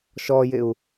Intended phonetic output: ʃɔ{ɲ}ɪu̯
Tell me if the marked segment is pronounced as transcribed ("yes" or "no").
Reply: no